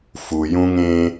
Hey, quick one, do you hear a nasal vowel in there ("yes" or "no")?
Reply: yes